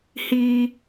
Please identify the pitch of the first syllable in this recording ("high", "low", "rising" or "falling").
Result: high